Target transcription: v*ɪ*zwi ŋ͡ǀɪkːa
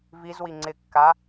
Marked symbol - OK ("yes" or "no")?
no